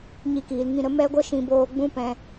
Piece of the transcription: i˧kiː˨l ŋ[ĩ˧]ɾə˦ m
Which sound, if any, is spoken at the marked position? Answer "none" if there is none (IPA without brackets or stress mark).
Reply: ĩ˧